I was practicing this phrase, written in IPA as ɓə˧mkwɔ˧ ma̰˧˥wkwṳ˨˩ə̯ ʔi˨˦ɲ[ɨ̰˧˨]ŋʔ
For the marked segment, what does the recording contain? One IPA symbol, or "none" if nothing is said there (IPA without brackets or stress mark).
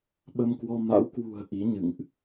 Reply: ɨ̰˧˨